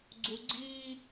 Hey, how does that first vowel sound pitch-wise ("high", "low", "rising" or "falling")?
low